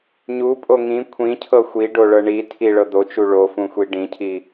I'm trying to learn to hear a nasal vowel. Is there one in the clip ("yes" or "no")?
yes